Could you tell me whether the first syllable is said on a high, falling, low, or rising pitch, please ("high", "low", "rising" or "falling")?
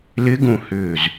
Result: rising